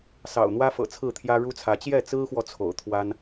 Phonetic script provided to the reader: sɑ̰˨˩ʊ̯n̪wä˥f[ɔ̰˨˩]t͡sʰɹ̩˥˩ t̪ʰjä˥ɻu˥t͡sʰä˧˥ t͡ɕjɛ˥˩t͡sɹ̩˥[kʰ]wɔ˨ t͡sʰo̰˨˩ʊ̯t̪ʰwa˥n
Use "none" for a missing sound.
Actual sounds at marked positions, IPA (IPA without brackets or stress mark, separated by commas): ɤ̰˨˩, x